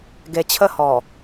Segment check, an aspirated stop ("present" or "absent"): present